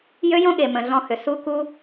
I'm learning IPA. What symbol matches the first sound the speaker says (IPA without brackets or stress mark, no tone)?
j